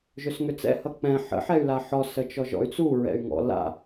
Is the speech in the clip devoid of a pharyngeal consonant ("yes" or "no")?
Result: no